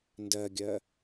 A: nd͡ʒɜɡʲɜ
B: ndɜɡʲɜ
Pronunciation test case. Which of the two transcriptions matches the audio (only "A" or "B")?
B